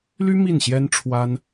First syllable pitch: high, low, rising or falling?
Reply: high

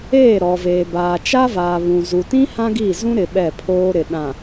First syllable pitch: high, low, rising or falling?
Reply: falling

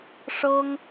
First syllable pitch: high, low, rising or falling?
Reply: high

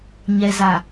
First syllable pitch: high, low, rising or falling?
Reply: low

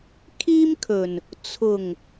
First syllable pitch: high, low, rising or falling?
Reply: high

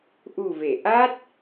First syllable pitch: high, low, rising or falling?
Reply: low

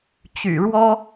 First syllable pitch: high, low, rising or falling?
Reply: low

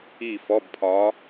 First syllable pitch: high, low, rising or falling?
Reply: falling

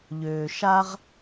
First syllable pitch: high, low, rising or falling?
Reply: low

